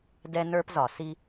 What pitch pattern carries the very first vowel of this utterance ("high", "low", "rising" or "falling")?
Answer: high